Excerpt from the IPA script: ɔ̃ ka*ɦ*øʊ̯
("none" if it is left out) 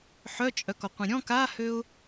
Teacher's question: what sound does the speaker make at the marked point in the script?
h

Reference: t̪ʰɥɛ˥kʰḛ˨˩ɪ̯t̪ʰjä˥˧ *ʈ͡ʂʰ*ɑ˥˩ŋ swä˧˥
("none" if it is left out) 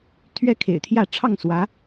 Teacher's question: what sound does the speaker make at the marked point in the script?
ʈ͡ʂʰ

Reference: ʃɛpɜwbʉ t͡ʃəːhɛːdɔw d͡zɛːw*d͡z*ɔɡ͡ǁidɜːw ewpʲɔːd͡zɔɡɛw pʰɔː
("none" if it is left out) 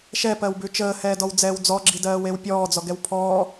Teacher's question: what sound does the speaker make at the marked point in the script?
d͡z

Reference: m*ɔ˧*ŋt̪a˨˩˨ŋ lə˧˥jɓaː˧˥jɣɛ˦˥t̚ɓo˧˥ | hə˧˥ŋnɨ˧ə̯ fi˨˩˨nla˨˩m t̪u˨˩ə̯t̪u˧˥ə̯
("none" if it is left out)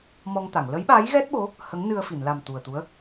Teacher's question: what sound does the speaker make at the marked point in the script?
ɔ˧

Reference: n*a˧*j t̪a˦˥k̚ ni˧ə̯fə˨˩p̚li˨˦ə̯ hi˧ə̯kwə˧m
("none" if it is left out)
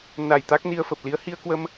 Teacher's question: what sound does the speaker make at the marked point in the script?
a˨˩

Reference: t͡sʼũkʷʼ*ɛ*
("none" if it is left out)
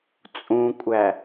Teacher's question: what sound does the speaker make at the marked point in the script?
æ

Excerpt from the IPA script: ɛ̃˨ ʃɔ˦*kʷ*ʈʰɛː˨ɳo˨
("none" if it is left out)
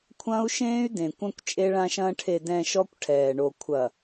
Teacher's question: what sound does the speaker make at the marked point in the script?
kʷ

